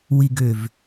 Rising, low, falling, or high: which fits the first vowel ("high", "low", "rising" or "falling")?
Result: low